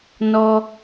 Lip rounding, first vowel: rounded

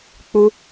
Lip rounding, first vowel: rounded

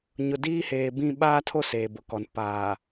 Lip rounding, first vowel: rounded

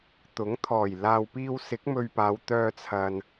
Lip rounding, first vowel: rounded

